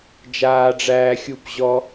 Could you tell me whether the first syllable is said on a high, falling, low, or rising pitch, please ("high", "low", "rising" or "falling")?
high